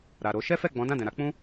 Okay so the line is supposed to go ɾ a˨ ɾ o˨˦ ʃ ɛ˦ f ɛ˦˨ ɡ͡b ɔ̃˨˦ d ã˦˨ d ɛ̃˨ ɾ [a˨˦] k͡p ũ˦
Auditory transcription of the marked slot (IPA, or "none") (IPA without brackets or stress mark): a˨˦